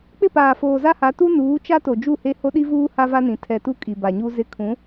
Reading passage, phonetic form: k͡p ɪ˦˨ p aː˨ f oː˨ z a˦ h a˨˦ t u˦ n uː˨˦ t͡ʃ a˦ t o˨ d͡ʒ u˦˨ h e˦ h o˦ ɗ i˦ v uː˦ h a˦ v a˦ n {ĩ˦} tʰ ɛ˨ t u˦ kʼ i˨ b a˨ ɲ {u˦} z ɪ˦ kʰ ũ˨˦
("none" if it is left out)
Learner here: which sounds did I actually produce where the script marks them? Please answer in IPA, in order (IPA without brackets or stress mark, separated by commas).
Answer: ĩ˨, u˦